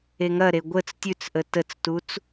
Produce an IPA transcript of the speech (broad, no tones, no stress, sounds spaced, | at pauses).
e ŋ ɐ ɾ e ɡʷ ə t͡s tʲ ʉ t͡s ʔ ə t ə t͡s t u t͡s